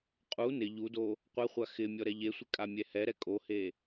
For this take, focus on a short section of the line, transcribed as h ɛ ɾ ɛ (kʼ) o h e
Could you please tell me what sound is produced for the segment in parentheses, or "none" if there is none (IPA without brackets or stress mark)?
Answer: kʼ